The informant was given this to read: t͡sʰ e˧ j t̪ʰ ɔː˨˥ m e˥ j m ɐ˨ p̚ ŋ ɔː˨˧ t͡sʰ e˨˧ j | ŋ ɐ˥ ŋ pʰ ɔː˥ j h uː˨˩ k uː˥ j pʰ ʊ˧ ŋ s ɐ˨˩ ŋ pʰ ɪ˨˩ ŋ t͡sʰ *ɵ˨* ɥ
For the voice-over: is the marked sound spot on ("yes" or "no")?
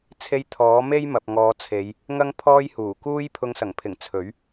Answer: no